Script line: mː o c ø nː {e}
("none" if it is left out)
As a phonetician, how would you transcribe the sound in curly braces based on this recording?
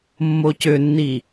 i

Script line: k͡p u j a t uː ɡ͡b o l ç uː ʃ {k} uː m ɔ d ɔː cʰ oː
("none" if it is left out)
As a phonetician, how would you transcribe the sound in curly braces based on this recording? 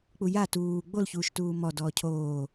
t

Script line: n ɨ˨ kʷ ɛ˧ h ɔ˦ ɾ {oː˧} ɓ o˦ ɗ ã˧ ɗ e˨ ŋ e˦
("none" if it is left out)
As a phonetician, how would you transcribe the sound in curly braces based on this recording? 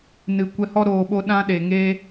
oː˧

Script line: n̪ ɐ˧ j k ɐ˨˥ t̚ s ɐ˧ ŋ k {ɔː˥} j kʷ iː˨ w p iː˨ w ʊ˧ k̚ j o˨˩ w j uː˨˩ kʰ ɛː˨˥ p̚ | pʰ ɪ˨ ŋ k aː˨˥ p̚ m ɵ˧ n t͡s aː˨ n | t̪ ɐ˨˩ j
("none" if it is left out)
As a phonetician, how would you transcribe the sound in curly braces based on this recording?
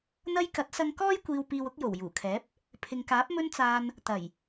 ɔː˥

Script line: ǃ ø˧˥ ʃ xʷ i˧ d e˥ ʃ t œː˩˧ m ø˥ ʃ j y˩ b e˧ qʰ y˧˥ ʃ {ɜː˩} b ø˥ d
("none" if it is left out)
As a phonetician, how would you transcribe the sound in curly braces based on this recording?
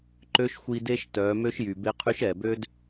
ɛː˩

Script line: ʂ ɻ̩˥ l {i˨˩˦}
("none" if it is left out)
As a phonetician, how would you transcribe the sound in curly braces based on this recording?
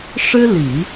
i˨˩˦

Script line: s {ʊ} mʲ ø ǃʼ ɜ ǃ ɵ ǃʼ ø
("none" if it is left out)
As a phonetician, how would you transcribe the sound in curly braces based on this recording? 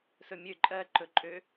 ɵ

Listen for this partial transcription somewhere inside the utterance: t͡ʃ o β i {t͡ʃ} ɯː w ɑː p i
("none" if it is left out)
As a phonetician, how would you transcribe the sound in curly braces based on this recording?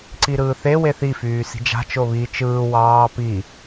t͡ʃ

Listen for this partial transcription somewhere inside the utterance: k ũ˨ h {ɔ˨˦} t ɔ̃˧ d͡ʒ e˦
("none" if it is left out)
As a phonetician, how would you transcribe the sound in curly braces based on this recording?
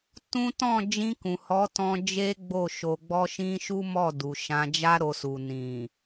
ɔ˨˦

